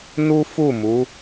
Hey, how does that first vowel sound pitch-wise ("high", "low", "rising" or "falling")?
high